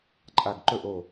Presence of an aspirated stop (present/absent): absent